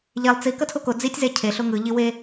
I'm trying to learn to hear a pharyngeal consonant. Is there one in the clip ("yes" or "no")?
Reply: no